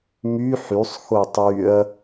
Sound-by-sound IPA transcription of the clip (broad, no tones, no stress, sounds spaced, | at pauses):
m y ħ y sˤ x o tˤ y ɐ̯